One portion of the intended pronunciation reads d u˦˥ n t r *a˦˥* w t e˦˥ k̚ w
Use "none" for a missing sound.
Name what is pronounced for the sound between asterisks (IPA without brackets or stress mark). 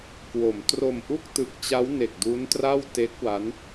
a˥˩